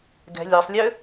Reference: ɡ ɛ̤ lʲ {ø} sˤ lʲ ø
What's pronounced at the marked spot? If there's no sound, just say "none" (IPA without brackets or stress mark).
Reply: ø